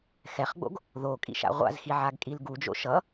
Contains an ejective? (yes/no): yes